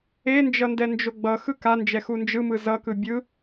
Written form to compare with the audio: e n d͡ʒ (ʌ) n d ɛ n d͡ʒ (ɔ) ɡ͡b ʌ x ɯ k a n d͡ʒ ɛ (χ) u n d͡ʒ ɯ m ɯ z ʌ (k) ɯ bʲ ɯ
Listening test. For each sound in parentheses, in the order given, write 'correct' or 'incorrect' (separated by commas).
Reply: correct, incorrect, incorrect, correct